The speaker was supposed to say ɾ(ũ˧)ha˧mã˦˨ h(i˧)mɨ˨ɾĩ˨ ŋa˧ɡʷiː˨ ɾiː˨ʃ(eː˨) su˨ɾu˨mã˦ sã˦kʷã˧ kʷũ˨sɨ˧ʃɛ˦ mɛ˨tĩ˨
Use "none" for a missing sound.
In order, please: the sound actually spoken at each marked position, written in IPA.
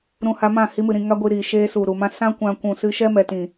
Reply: ũ˧, i˧, eː˧

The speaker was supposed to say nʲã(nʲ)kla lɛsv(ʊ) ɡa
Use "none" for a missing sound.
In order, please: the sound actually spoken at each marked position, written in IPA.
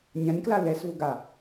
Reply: nʲ, ʊ

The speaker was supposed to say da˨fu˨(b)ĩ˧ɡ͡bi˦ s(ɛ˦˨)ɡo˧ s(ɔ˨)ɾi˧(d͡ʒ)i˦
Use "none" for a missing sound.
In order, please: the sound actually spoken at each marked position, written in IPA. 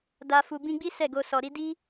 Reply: b, ɛ˦˨, ɔ˨, d

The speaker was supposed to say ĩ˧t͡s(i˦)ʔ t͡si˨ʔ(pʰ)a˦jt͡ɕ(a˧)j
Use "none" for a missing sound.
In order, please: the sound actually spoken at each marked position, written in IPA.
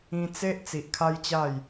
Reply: e˦, kʰ, a˥˧

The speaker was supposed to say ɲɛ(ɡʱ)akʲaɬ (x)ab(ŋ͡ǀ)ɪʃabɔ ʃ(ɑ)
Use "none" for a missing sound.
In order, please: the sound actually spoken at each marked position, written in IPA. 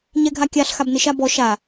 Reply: ɡʱ, x, n, a

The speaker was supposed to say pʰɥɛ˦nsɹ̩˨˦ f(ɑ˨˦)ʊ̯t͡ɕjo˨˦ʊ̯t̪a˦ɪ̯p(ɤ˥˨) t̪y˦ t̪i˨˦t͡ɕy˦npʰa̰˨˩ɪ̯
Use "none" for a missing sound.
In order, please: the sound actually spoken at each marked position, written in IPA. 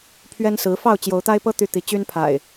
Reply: ɑ˥˨, ɤ˦

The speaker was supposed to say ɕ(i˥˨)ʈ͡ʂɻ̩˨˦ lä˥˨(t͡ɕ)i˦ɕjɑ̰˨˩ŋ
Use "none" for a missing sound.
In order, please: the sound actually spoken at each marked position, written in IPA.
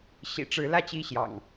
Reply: ḭ˨˩, t͡ɕ

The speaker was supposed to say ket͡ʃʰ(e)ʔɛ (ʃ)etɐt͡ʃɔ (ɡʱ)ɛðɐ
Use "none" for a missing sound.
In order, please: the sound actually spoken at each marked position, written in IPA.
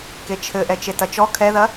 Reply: ɘ, t͡ʃ, kʰ

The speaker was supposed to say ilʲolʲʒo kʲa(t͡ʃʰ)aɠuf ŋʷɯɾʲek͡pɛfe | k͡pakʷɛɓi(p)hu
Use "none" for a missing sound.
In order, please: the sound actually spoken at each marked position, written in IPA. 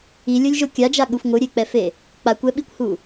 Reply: d͡ʒ, kʷ

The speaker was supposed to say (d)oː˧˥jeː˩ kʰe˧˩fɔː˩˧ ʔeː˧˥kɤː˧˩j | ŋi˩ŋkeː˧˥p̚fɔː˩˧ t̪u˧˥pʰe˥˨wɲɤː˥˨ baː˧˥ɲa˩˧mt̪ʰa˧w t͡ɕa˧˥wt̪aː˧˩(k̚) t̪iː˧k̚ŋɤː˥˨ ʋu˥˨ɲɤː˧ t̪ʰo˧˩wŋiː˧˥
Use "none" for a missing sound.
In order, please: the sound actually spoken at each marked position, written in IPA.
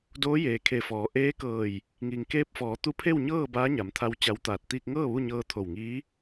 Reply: d, t̚

